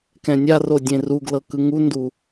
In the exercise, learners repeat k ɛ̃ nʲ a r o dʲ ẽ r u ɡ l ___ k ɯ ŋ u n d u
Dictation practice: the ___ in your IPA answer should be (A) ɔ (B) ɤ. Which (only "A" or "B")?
B